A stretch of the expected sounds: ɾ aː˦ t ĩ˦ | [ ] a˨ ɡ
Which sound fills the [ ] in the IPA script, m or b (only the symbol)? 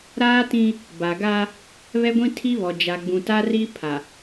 b